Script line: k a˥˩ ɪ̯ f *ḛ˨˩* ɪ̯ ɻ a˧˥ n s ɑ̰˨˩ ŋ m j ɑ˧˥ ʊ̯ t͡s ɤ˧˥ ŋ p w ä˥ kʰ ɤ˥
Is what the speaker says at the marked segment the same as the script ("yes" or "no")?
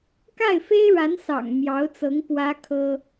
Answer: no